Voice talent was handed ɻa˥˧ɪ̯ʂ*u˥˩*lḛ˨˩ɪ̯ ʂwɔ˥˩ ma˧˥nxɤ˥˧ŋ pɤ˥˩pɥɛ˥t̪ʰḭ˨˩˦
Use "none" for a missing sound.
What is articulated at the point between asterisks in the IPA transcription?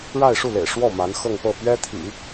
u˥˩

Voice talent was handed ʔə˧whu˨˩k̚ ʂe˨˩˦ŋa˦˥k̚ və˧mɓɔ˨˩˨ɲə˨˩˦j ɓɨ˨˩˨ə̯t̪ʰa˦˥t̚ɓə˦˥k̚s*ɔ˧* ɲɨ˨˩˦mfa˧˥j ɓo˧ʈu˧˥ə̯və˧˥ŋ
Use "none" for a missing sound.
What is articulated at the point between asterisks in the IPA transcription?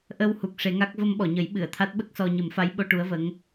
ɔ˧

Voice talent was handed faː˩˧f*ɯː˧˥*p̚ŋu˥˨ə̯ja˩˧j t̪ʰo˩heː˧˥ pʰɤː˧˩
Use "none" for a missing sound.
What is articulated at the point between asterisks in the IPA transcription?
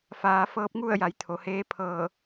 ɤː˧˥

